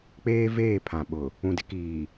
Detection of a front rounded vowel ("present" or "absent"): absent